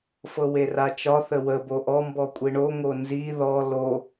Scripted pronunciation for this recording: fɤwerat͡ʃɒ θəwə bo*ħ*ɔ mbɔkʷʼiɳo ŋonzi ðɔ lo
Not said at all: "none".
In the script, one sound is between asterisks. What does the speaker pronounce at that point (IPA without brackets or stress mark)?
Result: ʔ